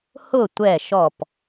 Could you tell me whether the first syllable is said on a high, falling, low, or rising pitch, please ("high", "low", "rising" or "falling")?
falling